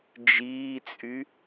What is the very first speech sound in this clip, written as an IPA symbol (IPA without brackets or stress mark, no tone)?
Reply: d͡ʒ